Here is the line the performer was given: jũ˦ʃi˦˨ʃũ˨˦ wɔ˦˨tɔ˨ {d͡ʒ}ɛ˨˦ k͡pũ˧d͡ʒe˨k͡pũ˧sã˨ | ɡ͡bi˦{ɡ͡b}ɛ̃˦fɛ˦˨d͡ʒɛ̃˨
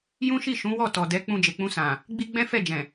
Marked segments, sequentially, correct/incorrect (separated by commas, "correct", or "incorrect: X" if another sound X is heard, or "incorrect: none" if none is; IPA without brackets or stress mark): incorrect: d, correct